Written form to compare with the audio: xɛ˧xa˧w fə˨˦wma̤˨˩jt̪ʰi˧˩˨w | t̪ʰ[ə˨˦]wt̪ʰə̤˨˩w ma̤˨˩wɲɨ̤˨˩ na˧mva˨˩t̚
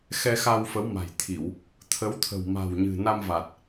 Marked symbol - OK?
yes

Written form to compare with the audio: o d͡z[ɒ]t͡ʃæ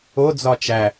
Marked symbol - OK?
yes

